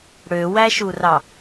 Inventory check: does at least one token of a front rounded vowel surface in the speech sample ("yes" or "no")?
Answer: yes